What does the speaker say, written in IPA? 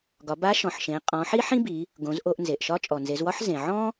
ɡ ɒ˩˧ b a˧˥ ʃ ɔ̃˩ ħ ʃ ẽ˩˧ qʼ ɔ̃˩˧ ħ i˥ ħ ĩ˥ b i˩˧ | ɡ õ˩˧ z ʔ o˧ ʔ n z e˩ ʔ ʃ ɒ˧˥ t͡ʃʼ ɔ˩ n z e˩˧ z w ɒ˥ ħ z ẽ˩ ʕ ɔ̃˥

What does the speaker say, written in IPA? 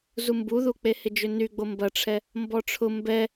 z u m b u ð u k͡p e h ɪ d͡ʒ ʏ n y ɡ͡b o m b ɐ ʈ͡ʂʰ ɛ | m b ɔ ʈ͡ʂʰ ʊ m b ɛ

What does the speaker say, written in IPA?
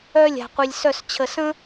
œ˥ lʲ a̤˧ qʷ i˧ lʲ s œ˥˧ s t͡ɕʰ ə˧ s ə̃˥

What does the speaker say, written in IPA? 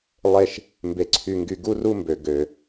lˠ e˦˨ ʃ | m b e˧ ǀʰ y˧ ŋ ɡ y˧ ɡ u˦ r u˦ m b ø˨ ɡ ø˨

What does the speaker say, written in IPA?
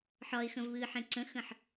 ħ ɒ ɪ̯ x ə̃ v β ɨː ħ ẽ ǀ ə̃ x ə̃ ħ

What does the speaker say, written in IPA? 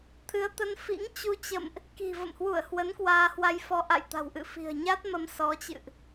t̪ʰ ɨ˨˦ ə̯ t̪ ə˧ n f ḭ˧˥ ŋ t͡ɕ u˧ t͡ɕ ə̰˧˨ m ʔ | k i̤˨˩ v ə̰˧˨ m h w u˧˩ ə̯ h w ə˨˦ n k w aː˧ h w a˧ j f ɔ˧ ʔ a̰˧˨ j t̪ a̤˨˩ w ʔ ɨ̰˧˨ f i̤˨˩ ə̯ ɲ a˦˥ t̚ m ə˧ m s ɔ˨˦ t͡ɕ ɨ̰˧˨ ʔ

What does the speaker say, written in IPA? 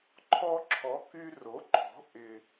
ǃʰ ɔ˧ ǁʰ ɔ˩˥ k y˧ r o˩˥ ǃʰ ɔ̤˩˥ ʔ ɪ˩

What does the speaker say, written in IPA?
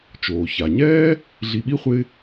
t͡ʃ oː˩ ç a˩ ɲ ɛː˥ | ɮ i˨ ɓ i˥ χʷ ɪː˦

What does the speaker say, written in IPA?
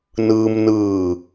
n ɯː˧ m n ɯː˧˩

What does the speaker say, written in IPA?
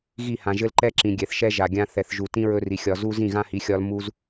ɣ i˦˨ h ã˨ ʒ ɘ˦ l ǃ ɛ˦ ǁ ĩ˨ ɡʲ ɛ˨ θ ʃ ɛ˦ ʒ a˨ ɡʲ ã˦ θ ɛ˨ θ ʒ u˨ t ĩ˦ ɹ ɵ˦ r i˨ xʲ ɒ˨ z u˦ z ĩ˦˨ ɣ ã˦ h i˨˦ xʲ ɒ˦ l m u˦ z

